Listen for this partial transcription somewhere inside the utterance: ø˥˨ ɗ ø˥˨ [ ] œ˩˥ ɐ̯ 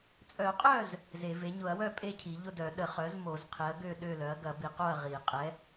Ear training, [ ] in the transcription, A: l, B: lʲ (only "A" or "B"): A